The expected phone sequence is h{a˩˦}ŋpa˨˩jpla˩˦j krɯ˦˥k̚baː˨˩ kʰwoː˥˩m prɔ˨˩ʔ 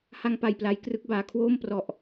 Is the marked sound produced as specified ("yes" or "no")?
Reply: no